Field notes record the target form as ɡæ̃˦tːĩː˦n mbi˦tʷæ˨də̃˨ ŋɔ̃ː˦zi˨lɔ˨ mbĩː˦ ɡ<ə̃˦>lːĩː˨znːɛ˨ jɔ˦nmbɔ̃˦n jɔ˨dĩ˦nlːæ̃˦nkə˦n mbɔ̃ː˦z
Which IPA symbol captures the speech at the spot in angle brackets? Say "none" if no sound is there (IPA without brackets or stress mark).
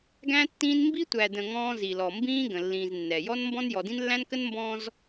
ə̃˨